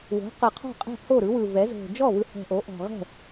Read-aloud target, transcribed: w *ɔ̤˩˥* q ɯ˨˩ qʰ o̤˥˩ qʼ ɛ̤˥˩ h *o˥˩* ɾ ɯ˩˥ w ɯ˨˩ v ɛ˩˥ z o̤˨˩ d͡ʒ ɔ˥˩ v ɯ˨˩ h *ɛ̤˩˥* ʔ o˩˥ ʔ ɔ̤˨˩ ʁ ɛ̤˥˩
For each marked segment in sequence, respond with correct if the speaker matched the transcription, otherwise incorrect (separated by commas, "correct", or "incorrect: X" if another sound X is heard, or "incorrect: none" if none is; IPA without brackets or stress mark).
incorrect: o̤˩˥, correct, incorrect: ɛ̤˨˩